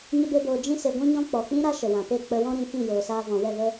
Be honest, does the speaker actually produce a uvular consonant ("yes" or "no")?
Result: no